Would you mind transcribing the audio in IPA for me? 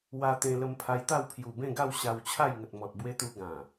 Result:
w a˧ t̪ ẽ˧ l ə˧ m pʰ a˧ j t̪ a˥˧ w pʰ j u˨˩ b ẽ˥˧ ɡ a˥˧ w ɕ a˧ w t͡ɕʰ a˥˧ j ŋ ə˨ t̚ m ɔ˨ t̚ b w e˧ t̪ u˧ ɡ ã˨˩

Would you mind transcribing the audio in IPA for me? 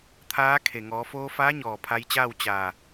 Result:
t̪ʰ aː˧˥ kʰ e˩ ŋ ɔː˩˧ f oː˧ f aː˧˥ ɲ ɔː˩ pʰ a˧ j t͡ɕ aː˥˨ w t͡ɕ a˧˩

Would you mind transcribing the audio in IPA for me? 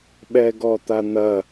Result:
ɓ ɛ ɡ ɔ t̪ a n̪ ɐ

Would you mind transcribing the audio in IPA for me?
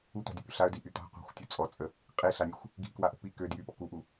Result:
u t̪ a̤ dʲ ə p y ɬ a ə̯ d i ʔ y t̪ a̤ qʷ a̤ xʷ tʲ u t͡sʼ ɔ t͡sʼ ə | qʼ i ɬ a nʲ ə xʷ | ɡ i̤ k w a ʔ ə̤ p i k ø d j y p ɔ k u ʔ u

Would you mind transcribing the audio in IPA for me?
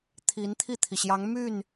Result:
t̪ʰ i˧˥ n t̪ʰ i˥˩ t̪ʰ i˩ ɕ j ɑ˧˥ ŋ m y˥˩ n

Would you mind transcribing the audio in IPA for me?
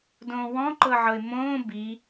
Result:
d õː w ɔ̃ ǃ ɤ ʕ ɤ ɪ̯ m õː b i

